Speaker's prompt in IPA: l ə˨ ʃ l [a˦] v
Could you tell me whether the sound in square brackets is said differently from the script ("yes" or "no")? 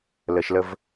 yes